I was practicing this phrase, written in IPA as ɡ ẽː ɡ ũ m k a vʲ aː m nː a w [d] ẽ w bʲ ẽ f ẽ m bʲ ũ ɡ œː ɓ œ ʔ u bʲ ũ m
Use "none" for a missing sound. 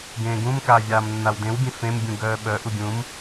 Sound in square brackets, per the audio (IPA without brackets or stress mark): d